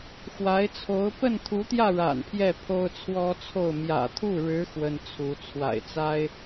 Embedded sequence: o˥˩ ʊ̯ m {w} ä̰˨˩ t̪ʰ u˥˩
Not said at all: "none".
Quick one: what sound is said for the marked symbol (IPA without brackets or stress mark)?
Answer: j